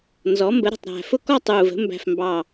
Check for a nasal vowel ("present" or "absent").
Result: absent